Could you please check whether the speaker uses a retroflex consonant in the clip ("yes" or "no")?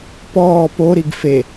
no